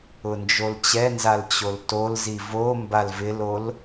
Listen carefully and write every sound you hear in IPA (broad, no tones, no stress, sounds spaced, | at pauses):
ʊ n d͡ʒ o l t͡ɕ ɛ n z a l t͡ɕ o l t o l z i v o m b a l v ɪ l o l